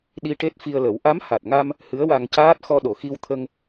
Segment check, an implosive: present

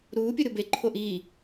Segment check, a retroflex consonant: absent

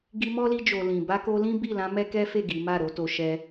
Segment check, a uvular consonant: absent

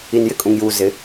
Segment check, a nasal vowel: present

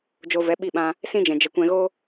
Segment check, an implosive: present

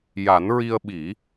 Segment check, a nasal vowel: absent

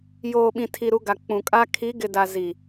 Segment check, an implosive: present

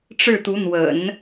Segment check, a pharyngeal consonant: absent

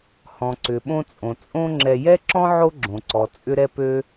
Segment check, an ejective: present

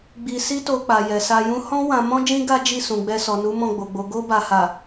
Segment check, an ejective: absent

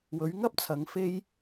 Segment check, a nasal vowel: absent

